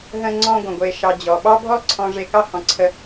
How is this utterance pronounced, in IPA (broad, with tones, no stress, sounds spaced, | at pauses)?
ɦ ə̃˦ ŋ͡ǀ ɔ̃˦ ɡʷ ə̃˩ ɡʷ e˨ ʃ ɑ˨ d͡ʑ ɔ˩ ɓ ɑ˥ bʱ ɔ˥ ǀʰ ɔ̃˨ ʐ e˨ k ɑ˦ h ɔ̃˩ ǀʰ ə˨